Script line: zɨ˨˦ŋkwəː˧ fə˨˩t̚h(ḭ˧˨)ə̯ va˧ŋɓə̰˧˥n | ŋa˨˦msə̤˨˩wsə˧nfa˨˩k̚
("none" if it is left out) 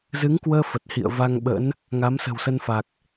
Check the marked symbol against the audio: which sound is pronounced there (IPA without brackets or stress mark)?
ḭ˧˨